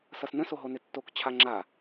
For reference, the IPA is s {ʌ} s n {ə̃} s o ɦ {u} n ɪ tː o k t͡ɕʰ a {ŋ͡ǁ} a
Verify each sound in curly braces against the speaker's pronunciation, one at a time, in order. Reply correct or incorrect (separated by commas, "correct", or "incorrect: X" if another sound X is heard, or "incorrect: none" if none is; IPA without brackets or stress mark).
correct, correct, incorrect: o, correct